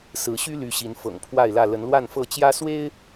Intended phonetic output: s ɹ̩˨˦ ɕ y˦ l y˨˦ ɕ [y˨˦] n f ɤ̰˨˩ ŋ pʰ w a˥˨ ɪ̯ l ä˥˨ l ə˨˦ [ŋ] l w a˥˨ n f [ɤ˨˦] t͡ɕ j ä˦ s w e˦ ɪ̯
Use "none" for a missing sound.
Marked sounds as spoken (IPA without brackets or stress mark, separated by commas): i˨˦, n, ɤ˥˨